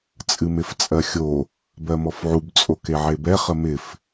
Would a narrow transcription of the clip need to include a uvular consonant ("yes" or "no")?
yes